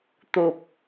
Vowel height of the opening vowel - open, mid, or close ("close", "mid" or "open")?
mid